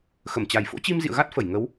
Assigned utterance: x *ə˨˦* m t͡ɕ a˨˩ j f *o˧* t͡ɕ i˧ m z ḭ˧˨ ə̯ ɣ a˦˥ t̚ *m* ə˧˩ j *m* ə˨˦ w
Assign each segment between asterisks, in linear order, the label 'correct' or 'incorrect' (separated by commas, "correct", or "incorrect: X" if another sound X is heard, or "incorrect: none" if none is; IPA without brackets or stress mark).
incorrect: ə˧˩, incorrect: o̰˧˥, incorrect: f, incorrect: ŋ